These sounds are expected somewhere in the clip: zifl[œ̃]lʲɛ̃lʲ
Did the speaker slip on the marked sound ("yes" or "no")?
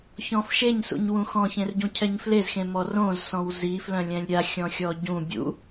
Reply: no